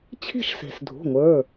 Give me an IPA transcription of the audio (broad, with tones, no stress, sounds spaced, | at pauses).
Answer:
t͡ɕʰ i̤˥˧ ʃ s e̤˩ s dʱ ṳ˩˧˩ ŋʷ ə˞˩˧˩